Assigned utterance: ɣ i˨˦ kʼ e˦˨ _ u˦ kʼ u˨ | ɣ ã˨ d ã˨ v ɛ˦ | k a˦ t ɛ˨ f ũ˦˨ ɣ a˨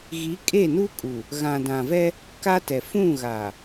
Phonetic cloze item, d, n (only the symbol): n